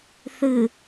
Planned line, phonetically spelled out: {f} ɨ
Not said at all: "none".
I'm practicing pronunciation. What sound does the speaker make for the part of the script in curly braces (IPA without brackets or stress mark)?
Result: θ